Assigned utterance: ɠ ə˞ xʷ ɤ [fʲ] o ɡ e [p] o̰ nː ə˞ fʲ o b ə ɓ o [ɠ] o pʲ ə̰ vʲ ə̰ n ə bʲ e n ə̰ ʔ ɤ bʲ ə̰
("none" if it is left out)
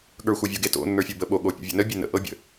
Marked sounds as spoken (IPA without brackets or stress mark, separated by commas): vʲ, t, ɠ